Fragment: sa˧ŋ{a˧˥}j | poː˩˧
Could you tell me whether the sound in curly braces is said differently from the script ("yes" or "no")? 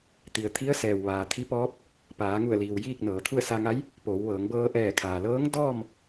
no